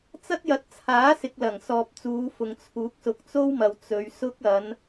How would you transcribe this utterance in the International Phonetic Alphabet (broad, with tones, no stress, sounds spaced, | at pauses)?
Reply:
t͡s ɐ˥ t̚ j ɐ˨˥ t̚ t͡sʰ aː˨˥ s ɪ˨ k̚ l ɐ˨˩ ŋ s ɔː˨ p̚ t͡s uː˨˧ f ʊ˨ ŋ t͡sʰ uː˨˥ k̚ s ʊ˨˥ k̚ t͡s o˥ w m ɐ˨ w t͡s ɵ˨˧ ɥ s ʊ˥ k̚ ɐ˨˧ n